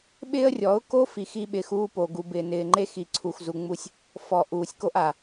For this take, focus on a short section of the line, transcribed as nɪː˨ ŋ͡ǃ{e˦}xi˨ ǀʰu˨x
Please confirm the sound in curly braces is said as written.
yes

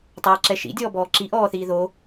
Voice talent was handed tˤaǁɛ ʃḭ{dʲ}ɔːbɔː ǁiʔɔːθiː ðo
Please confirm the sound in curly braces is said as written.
yes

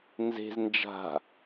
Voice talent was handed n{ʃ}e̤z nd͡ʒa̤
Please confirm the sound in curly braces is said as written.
no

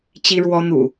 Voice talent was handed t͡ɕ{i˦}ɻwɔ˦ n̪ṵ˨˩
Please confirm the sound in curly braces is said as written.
yes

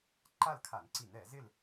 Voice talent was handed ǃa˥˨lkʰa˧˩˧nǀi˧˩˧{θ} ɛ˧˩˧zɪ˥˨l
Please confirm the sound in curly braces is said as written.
no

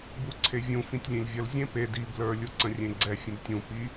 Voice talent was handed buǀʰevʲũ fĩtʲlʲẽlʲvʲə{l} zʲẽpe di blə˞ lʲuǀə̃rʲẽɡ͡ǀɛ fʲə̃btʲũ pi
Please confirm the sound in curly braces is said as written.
yes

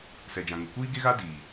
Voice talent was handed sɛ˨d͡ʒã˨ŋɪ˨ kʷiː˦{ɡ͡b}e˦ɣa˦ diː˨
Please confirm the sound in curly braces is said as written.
no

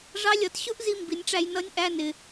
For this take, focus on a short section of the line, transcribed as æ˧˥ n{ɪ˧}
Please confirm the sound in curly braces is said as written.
no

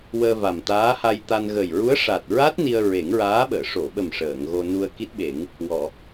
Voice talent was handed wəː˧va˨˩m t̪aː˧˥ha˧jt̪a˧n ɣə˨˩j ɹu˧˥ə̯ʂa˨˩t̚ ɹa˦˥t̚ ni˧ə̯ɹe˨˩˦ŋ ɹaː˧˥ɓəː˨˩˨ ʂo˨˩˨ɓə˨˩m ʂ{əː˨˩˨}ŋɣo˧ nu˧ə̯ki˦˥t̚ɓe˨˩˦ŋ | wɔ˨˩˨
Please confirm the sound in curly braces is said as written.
yes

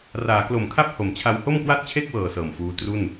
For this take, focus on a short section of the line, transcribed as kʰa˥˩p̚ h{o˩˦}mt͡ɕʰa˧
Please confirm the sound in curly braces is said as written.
yes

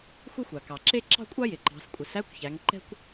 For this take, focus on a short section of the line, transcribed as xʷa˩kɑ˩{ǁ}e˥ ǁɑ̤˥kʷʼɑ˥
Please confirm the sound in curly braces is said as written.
yes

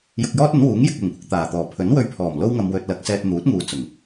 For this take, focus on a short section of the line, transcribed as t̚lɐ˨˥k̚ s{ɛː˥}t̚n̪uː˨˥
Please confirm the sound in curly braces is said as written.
no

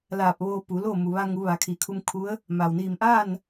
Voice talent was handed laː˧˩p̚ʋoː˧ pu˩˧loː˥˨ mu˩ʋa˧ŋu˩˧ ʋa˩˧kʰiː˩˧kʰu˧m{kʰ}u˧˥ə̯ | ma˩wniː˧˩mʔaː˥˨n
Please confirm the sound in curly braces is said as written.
yes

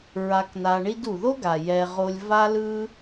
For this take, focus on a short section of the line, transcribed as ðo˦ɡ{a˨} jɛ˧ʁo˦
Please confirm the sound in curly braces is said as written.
yes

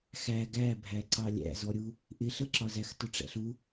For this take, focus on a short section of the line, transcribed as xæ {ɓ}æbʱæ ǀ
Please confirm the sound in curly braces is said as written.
no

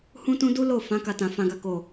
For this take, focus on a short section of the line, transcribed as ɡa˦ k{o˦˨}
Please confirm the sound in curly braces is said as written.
yes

